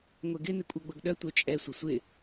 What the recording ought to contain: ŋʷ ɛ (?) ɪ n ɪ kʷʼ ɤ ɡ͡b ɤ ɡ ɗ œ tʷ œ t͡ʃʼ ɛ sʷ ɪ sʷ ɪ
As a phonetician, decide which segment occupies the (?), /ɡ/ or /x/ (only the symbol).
ɡ